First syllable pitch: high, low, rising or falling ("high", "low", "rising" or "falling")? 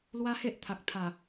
high